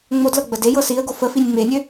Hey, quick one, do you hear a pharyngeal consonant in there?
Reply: no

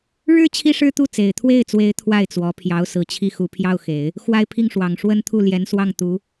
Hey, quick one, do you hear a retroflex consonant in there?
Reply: yes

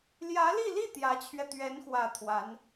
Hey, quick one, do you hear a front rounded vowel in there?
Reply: no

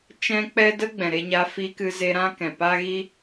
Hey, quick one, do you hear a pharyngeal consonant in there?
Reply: no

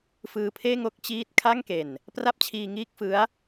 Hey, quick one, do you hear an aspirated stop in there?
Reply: yes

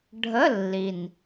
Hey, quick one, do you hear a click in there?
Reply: no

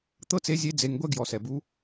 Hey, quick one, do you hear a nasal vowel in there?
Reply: no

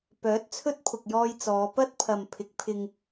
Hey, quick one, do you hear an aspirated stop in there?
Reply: yes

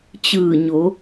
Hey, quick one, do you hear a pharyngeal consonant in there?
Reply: no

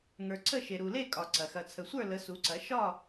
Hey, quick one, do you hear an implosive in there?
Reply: no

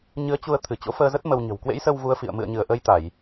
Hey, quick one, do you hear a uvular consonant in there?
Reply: no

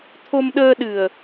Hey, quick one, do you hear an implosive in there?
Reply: yes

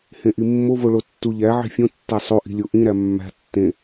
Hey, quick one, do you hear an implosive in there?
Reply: no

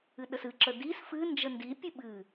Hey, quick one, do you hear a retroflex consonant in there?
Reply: no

